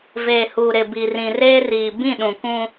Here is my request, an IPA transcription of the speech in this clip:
v eː˨ h uː˨ ɾ ɪ˨ b i˨ r ĩ˨ r eː˦ r iː˨ b ĩ˦˨ ɗ ũ˨ k ũ˦

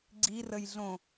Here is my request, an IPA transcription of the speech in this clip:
ɡ͡ǀ i r ə j ɮ õ

